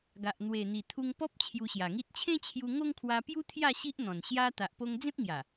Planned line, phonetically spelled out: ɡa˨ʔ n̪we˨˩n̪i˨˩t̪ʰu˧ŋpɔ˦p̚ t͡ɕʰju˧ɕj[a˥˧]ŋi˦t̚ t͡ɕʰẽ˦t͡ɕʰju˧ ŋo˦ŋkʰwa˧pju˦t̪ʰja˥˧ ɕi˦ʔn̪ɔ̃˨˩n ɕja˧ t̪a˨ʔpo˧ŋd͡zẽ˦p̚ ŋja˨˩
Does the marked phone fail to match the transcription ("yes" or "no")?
yes